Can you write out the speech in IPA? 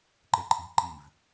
ǃ e ǃʼ i̤ ǃ i v

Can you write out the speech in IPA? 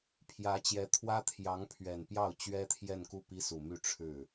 pʰ j ä˧˥ t͡ɕ j ɛ˧˥ t̪ʰ w ä˥ t̪ʰ j ɑ˧˥ ŋ pʰ ɥ ɛ˨˩ n p j ɑ˥˩ ʊ̯ t͡ɕ ɥ ɛ˥ t̪ʰ j ɛ˥˧ n k u˥˩ p i˥ s u˨˩ m y˥˧ ʈ͡ʂʰ ɻ̩˥˩

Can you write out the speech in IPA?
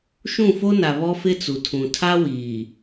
ʃ ũ˦˨ f o˦ n a˨ β ɔ˦ f ɪ˦ t͡s u˨ tʰ ũ˨ tʰ a˦ w iː˨

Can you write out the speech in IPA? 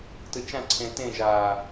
t ɯ t͡ʃ ã ǀʰ ẽː t ẽ ʒ aː

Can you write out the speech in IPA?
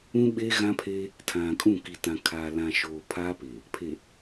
ũ˦ ɓ e˦ ɣ ã˦ pʰ e˦ | tʰ ã˨ kʼ ũ˦˨ k i˨ t ã˨ kʰ aː˨ l ã˨ ʃ oː˨ pʰ a˦ p e˨ | pʰ e˨

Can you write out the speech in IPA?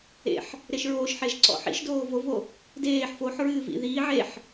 ḛ ħ | ɾ e ʃ ɹ oː ʃ ħ e ʒ ǀ ɔ̰ ħ ḭ ʃ d oː v o v o | d eː ħ f o ħ ɹ ɨː v ḭ ð iː ʕ e ħ

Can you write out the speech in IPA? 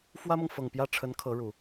f w ä˥ m ɤ˨ ŋ f ɤ˨˩ ŋ p j ä˥˩ ʈ͡ʂʰ ə˧˥ n kʰ ɤ˧˥ ɻ u˨˩˦

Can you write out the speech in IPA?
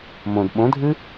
m õ d ɓ õ dʱ ɨ

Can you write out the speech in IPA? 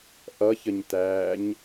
ʔ ʌ ç ə ɲ t æː ɲ

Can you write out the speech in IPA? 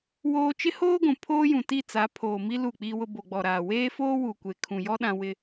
w oː˦ t͡ʃ ɪ˦ h oː˦ ɡʷ ũ˨ pʰ oː˦ j ũ˨ t i˦˨ t͡s a˨˦ pʰ oː˨ m i˦ l u˦˨ k͡p i˦ w ʊ˦ b o˨ ɡ͡b ɔ˨ ɾ aː˨ w eː˦ f oː˦ w u˨ kʷ e˨ kʰ ũ˨ j ɔ˦ ɗ ã˦ w ɪ˦

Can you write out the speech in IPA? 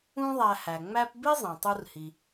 ũ˥ ðˤ æ˧ h æ˩ ŋ͡m æ˥ p b i˥ zˤ ẽ˩ tˤ u˧ r h i˩

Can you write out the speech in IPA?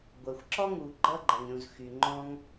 ɡʷ ɐ˩ xʷ ǁ ɔ˥ ŋ u˩ ɡ͡ǃ ʌ˥ ɡ͡ǃ ɐ˩ ŋ ɾʲ ũ˩ z x y˩ ŋ͡ǃ ɔ̃˥ ŋ

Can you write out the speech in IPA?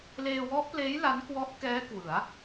l eː˧ w ɔ˦˥ ʔ p l eː˦˥ j l a˦˥ n k w ɔ˦˥ ʔ k ɛː˦˥ k w ɯ˩˦ a̯

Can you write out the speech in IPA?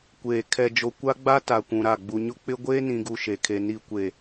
kʷ eː˨ kʰ ɛ˨ d͡ʒ o˨ kʷ a˦ ɡ͡b a˦ t a˨ kʷ ũ˨ ɾ a˦˨ ɡ͡b u˨ ɲ ʊ˦ k͡p ɪ˦ ɡʷ eː˦ n ĩ˨ ɡ u˨ ʃ e˨ kʰ e˨ n i˨ kʷ e˨

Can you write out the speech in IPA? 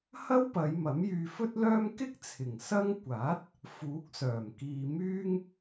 h ɐ˥ w p ɐ˨˧ j m ɐ˨˥ m j yː˧ f ɵ˥ t̚ l œː˥ m k ɪ˥ k̚ t͡sʰ ɪ˨˩ ŋ s ɐ˥ ŋ kʷ aː˨˥ t̚ | f uː˨˥ k̚ s œː˨˩ m k iː˧ m yː˥ ŋ

